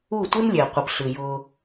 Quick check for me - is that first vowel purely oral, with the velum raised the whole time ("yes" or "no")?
yes